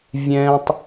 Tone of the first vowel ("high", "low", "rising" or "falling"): high